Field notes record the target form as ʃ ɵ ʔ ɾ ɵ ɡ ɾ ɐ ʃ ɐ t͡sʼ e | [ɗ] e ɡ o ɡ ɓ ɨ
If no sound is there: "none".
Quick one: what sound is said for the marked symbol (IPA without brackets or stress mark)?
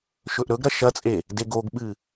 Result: d